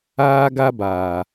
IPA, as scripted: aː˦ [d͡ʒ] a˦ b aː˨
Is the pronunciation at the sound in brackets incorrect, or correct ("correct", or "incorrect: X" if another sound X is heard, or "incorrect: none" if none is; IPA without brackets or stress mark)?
incorrect: ɡ